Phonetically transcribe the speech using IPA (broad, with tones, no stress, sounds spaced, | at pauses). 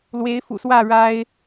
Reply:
l w e˨˦ ɪ̯ f ṵ˨˩ s w ä˥˨ ɻ a˦ ɪ̯